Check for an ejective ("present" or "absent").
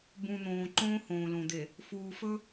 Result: absent